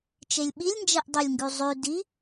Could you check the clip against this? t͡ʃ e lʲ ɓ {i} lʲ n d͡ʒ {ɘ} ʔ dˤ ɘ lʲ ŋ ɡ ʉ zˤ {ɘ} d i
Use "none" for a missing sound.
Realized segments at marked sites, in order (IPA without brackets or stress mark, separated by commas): i, ɛ, ʉ